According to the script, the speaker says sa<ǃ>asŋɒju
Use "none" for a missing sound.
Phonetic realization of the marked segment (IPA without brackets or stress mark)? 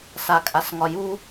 kʼ